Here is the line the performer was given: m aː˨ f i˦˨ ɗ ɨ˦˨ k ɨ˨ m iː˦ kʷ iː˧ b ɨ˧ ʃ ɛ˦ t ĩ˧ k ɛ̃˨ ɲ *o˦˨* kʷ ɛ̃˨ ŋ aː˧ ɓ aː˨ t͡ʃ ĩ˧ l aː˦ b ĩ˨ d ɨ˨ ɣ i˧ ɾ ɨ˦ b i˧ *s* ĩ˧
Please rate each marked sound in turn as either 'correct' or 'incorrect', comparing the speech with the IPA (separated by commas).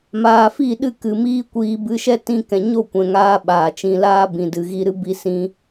correct, correct